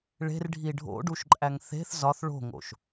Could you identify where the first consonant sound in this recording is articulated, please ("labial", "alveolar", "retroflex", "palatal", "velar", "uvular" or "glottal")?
retroflex